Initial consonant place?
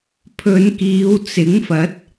labial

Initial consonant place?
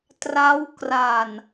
alveolar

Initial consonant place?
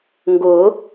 velar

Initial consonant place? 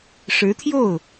retroflex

